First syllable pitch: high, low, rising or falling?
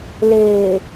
low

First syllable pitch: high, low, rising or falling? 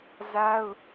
high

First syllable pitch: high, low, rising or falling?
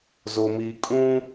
low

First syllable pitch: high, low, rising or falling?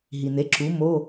low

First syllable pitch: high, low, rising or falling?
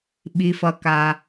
low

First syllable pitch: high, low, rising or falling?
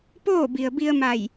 falling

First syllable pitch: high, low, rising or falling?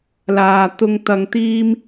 low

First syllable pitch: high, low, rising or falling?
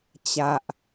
low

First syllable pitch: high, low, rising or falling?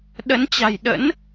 rising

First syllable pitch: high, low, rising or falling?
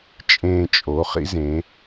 low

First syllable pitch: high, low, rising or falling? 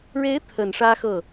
rising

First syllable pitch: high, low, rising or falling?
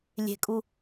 low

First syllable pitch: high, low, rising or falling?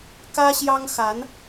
high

